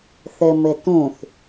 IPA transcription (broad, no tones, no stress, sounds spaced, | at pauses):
θ ɘ m ɘ t ũ θ